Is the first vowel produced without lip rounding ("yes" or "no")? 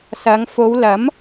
yes